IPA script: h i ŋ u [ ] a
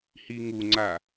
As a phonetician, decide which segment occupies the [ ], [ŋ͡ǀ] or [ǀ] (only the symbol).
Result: ŋ͡ǀ